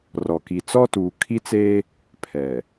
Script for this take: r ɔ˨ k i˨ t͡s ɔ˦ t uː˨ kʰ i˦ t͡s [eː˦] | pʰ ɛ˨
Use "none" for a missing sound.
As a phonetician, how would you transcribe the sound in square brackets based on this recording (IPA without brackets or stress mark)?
eː˦